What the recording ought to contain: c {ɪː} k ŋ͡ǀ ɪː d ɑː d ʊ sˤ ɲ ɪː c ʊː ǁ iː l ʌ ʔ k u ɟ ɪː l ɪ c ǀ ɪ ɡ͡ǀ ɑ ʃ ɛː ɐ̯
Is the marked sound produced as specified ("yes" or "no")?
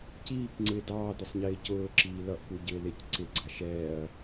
no